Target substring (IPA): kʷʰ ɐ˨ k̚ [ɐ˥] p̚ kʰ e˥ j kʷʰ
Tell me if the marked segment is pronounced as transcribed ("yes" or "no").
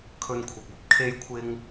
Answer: yes